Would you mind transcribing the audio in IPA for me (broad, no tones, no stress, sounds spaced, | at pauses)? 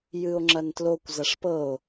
j ɨ o̯ ŋ͡ǁ ɐ n t l o kʷ z ɐ ʂ p ɤ o̯